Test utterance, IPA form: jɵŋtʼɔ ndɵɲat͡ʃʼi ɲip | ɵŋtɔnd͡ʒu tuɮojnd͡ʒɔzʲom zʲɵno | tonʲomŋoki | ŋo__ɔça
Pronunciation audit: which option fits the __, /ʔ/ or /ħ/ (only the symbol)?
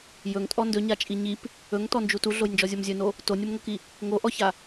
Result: ʔ